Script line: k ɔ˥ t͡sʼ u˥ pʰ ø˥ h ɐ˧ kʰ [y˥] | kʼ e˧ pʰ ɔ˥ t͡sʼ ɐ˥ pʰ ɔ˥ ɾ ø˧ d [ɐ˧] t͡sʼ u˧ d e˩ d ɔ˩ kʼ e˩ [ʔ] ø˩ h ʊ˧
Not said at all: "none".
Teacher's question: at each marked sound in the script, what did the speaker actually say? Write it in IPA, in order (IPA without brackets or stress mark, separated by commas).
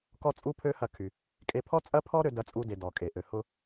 y˩, ɐ˧, ʔ